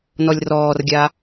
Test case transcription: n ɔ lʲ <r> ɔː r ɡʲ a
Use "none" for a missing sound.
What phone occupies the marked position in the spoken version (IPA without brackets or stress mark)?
r